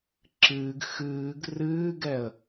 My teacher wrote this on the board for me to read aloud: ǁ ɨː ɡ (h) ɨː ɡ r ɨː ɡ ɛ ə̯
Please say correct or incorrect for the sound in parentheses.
incorrect